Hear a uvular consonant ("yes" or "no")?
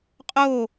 yes